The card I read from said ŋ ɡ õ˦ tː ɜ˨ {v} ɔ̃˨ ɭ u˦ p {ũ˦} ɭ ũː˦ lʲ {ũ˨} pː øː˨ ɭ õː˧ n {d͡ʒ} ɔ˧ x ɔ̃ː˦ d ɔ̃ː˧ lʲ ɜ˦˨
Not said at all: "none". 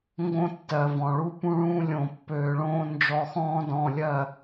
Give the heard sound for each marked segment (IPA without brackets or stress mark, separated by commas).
v, ũ˦, õ˨, d͡ʒ